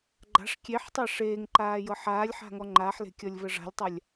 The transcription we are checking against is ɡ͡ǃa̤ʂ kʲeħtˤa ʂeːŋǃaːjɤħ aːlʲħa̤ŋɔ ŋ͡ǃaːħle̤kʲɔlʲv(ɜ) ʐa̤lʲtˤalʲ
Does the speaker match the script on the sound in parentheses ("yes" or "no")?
yes